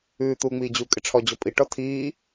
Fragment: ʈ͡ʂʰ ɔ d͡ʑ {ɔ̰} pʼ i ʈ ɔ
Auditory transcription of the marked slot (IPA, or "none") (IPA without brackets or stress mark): ɔ